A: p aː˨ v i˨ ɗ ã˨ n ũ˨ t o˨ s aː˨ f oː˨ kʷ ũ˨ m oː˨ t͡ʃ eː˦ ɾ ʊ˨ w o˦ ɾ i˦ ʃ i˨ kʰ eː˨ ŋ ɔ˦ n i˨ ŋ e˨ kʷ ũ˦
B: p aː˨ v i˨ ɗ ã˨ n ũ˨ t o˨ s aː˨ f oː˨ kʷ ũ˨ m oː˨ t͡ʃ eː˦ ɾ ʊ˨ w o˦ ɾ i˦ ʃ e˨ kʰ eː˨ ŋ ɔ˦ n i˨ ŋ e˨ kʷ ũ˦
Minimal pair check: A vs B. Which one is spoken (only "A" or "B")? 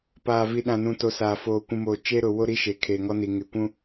B